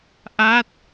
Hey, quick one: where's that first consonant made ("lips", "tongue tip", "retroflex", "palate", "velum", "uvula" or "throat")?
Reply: throat